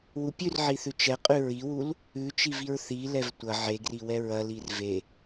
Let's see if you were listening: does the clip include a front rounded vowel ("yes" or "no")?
no